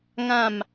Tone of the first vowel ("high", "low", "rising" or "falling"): falling